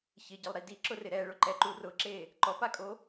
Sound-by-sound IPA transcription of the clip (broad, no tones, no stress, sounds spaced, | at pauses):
ç ɪ ɟ ɪ lˠ ɾ i d i ǁ ʊ r ɪ ɾ ɛ ɭ ʊ ǃ ɛ ǃ u r ʊ ǁ e | ǃ ɔ p a kʼ o